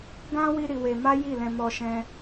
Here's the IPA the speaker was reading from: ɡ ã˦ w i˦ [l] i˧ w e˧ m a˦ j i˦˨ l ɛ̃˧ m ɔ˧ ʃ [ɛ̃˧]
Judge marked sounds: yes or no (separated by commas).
no, no